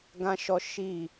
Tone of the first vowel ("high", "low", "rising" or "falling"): high